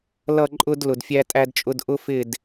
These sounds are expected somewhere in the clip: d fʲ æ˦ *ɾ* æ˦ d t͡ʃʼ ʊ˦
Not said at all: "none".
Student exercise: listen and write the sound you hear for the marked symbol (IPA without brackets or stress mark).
tʼ